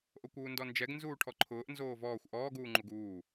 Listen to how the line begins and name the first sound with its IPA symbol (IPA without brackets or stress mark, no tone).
ʔ